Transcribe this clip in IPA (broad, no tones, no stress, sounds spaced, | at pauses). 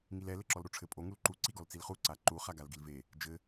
ŋ i l ɛ l ɘ ǁ ɔ l ɾ o ʈ͡ʂʰ ɘ pʼ o ŋ u l ǃ u ǀ i ɡ ɔ l t͡s i l χ u ǀ a ǃ u χ a ɡ a l ɡ i l v e | d͡ʒ ɘ